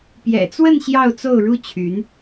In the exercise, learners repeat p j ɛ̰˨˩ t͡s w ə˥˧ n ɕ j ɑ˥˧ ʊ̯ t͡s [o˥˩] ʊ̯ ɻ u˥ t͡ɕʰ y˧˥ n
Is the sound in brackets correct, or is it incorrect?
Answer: correct